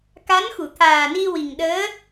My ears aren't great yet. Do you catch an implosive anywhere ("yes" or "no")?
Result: yes